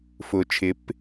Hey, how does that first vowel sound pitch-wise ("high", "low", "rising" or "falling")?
low